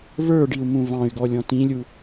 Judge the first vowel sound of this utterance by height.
mid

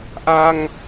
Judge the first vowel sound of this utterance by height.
low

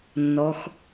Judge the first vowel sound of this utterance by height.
mid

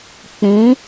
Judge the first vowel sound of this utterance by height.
high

